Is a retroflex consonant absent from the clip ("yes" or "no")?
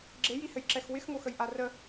yes